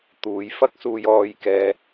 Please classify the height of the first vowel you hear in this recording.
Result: high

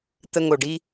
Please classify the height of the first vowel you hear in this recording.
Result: mid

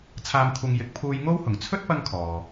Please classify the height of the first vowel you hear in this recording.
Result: low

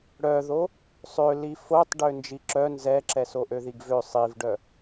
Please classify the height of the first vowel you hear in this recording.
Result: mid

